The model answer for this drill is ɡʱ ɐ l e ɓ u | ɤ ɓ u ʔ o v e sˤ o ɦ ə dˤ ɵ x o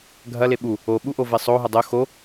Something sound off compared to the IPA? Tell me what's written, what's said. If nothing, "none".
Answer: ɤ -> o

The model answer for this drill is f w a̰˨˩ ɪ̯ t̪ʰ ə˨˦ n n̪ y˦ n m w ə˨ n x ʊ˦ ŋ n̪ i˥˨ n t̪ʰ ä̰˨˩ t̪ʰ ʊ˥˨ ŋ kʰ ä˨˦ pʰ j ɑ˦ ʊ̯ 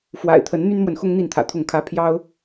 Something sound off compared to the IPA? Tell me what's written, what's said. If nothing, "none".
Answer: none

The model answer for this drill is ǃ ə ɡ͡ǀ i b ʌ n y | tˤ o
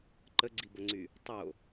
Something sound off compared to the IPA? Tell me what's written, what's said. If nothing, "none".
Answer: n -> ŋ͡ǀ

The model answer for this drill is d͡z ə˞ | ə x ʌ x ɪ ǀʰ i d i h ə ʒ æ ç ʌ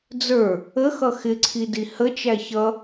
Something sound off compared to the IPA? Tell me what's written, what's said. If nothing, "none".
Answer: ʒ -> t͡ʃ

